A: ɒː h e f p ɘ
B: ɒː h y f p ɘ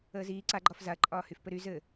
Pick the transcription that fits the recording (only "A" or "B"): B